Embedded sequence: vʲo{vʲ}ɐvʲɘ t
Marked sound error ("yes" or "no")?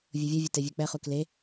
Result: no